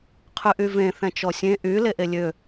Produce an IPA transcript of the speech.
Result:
qʰ y ʔ y v ẽ θ ɛ̃ t͡ʃ ɔ sʲ ẽ ʔ y l e ʔ e lʲ ø

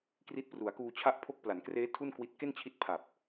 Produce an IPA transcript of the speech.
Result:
k r i˦˥ t̚ p r u˩˦ a̯ k uː˧ t͡ɕʰ a˦˥ ʔ pʰ o˦˥ k̚ p l a˩˦ n k r eː˦˥ tʰ u˥˩ n k w i˦˥ t̚ k e˥˩ n t͡ɕʰ i˦˥ t̚ pʰ a˨˩ p̚

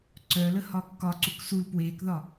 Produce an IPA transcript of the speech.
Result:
ǀ œ l ə h ɒ kː ɒ ǀ u k s u l p w eː k ð ɒ

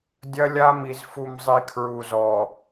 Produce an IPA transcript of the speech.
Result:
dʲ ɐ˦ lʲ a˦ m i˨ z f u˨ m zˤ i˨ kʰ ɹ u˨ z ɔ˨

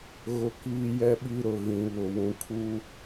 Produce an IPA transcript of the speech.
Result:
ɣ ʊ˦ k iː˦ j ɛ˦ ɓ i˦ ɾ ʊ˨ ɣ ĩ˨ β ʊ˨ w ũ˨ kʰ u˦

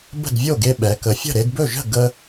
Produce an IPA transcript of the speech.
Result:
b ə̤˥˩ d vʲ o˥˩ ɡ e˧ ɓ ɛ˩˧ k ə˩˧ fʲ ə̤˥˩ ɾ e˧ d b ɵ˥˩ ʒ ə̤˥˩ ɡ ə˧

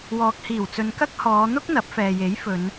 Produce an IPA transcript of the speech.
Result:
w ɔː˨ k̚ h iː˨˩ w t͡s ɵ˨˧ n k ɐ˥ k̚ h ɔː˨˧ n̪ ʊ˥ k̚ n̪ ɐ˨˥ p̚ f ɛː˨ j e˨˥ j f ɵ˨˧ n

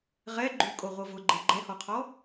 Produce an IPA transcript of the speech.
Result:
ʁ ɛ ɡ͡ǃ y kʼ o ʁʷ ɤ v ʊ ɡ͡ǃ e ɡ͡ǃ ɛ h ɔ qʰ ɔ

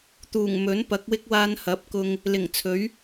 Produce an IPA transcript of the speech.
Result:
t̪ uː˨˩ ŋ m ɵ˨˥ n p ɐ˨˥ k̚ w ɪ˥ k̚ w aː˧ n h ɐ˨˥ p̚ k ʊ˧ ŋ | l ɪ˨˩ ŋ t͡sʰ ɵ˨˥ ɥ

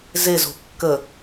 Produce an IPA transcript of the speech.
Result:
z e z o̤ kː ə

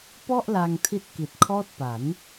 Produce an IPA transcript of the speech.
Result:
p ɔ˥˩ ʔ l a˧ ŋ tʰ i˦˥ t̚ k i˨˩ t̚ kʰ ɔː˦˥ t̚ p a˩˦ n

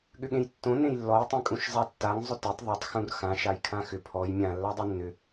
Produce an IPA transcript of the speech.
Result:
ɠ ʏ ɠ ẽ j tː õ n ẽ j lː ɔ j tˤ ẽ kʼ ũ ʃ zˤ a tː a ŋ zˤ ʏ t e tˤ ðˤ o tˤ x ũ r x ã ʃ a j kʰ ã x ʏ pʰ ɔ j mʲ ã lː a dˤ e nː ʏ

